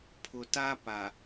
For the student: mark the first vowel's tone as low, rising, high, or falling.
low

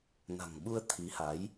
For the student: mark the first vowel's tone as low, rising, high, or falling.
low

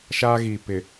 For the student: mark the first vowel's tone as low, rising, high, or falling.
high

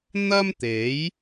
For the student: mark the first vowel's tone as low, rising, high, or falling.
high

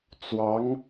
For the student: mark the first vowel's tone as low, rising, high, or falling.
rising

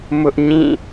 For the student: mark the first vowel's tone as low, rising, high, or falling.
high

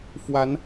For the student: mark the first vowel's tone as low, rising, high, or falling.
rising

